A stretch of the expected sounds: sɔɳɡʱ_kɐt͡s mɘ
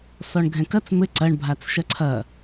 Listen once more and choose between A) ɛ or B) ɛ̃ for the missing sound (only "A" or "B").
B